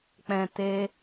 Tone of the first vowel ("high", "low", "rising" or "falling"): low